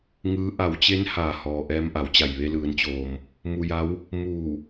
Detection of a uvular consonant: absent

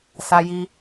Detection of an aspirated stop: absent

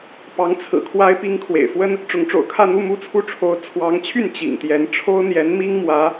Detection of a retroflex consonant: present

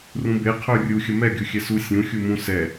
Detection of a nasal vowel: present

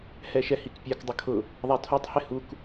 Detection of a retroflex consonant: absent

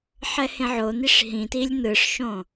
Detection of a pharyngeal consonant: present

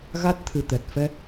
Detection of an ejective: absent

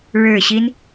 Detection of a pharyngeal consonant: absent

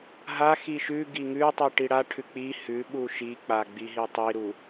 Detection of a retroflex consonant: present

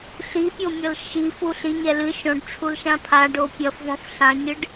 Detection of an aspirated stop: present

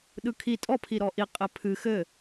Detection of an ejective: present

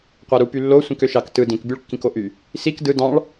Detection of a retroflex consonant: present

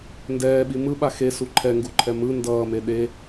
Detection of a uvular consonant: absent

